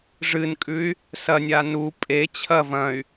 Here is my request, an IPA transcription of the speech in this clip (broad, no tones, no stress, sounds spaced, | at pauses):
ʐ ɨ n kʼ ʉ y̯ | s ɐ nʲ a n u pʼ e t͡ɕʰ ɐ v ɐ̃ y̯